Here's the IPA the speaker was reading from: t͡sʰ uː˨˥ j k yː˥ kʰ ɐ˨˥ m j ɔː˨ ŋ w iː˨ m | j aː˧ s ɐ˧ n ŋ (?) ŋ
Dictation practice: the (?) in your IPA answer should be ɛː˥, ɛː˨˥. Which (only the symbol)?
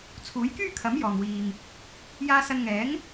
ɛː˨˥